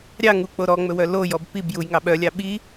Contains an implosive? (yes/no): yes